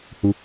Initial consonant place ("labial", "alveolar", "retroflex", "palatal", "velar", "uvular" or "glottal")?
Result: glottal